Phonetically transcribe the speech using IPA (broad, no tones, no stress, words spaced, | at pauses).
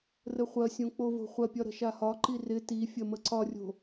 rəχʷɐsʲõ k͡povo̤χʷɐpʲɒ ɾə̤ʃahɒǃi rɪ ti fʲɐməǀɒrʲo̤